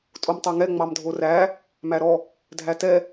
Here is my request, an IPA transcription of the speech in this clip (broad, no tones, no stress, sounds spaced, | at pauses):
tʼ o m tˤ o ŋ ɛ ŋ͡m ɑ m dʱ o r æ | m æ ɾ ɔ | dʱ æ t ɛ